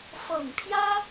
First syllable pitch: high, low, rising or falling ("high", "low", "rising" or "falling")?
low